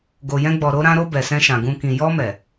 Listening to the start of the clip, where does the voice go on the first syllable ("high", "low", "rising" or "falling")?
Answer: low